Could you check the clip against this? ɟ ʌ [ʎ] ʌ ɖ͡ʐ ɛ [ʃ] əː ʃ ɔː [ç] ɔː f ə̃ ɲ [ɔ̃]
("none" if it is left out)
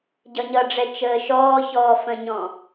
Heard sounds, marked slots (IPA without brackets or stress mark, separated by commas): ɲ, t͡ʃ, ç, ɔ̃